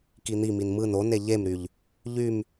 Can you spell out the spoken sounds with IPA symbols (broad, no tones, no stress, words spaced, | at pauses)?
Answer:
kin̪imin mɯn one ʎemɾyʎ | ʎym